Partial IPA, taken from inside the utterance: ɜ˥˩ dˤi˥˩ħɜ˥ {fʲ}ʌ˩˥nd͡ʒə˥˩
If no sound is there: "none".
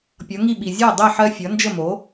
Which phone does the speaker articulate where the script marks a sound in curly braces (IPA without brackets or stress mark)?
fʲ